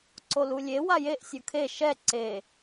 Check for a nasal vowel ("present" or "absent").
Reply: absent